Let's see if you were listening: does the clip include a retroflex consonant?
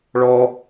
yes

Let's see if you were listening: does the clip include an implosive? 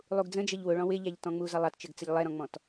no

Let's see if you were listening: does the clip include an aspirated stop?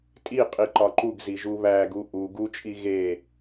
no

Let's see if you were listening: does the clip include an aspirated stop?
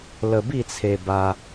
yes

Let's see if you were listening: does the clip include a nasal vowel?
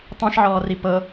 yes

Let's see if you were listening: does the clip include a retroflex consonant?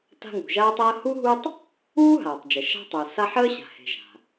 no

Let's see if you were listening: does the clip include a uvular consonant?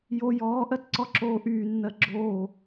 no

